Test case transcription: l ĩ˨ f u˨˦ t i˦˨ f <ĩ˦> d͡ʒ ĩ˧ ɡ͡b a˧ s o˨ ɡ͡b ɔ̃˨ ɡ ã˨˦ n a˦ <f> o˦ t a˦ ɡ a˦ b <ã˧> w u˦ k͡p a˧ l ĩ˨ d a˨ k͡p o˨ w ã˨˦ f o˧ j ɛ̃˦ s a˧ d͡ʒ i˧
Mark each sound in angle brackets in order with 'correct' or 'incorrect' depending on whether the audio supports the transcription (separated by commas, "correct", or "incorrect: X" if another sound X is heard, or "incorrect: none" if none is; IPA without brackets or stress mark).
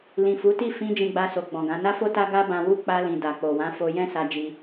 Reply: incorrect: ĩ˧, correct, correct